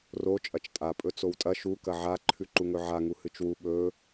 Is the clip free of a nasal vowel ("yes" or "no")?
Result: yes